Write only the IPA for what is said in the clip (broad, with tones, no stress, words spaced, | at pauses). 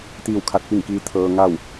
t̪iː˥˨wkʰa˧˥t̚pi˥˨ŋkiː˧˥ t̪ʰɤː˧ ŋa˥˨w